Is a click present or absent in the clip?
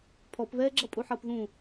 present